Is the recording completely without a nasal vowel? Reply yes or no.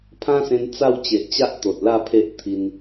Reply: no